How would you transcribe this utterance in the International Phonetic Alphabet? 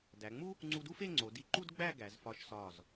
dæ˩˧ŋ͡mu˥ | ŋ͡ǀu˧du˥fe˥˧ ŋ͡ǀo˩˧di˧ ǃu˥d ɡ͡bæ˥˧ɡæ˩˧z fɒ˧ʃsɒ˧˩z

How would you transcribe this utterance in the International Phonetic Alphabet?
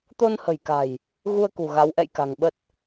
t̪o˧nhə̤˨˩jka̤˨˩j | ɣu˧ə̯kṳ˨˩ ɣa˨˦wʔɛ̰˧˨jka̤˨˩ŋ ɓə˦˥t̚

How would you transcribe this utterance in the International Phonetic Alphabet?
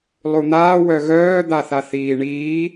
lˠun̪aː wœɣœː d̪aθaθiːɳiː

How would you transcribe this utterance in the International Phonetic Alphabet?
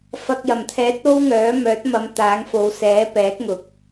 fɐ˨k̚jɐ˨˩mt̪ʰɛː˨˥t̚ o˥wŋœː˨˥ mœː˨˥t̚mɐ˨˧m t̪aː˨˥ŋfo˨˧w sɛː˨˥pɛː˨˥k̚ŋʊ˨˥k̚

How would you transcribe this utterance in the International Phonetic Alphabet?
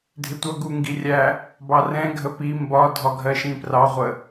dʱɪtʷʌ ɡuŋɡirʲæ | bɑrɛ̃ ɡʱəpi mbɒ dʱɒɡʱɜʃĩprɑ ʁʷə

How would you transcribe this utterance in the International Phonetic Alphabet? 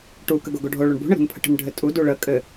ʈu kəɡoɡoɖʱo ɭoɳbṳ ɳəɾṳnpʰə̤ʈə̤n ɖʱɘtʼu duɭə kʼɘ

